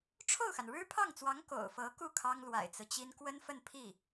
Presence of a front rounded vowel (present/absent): absent